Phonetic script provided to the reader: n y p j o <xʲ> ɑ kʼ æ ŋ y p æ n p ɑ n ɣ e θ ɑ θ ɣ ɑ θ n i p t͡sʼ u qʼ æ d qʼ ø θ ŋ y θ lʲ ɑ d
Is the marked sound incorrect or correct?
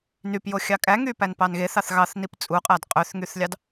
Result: correct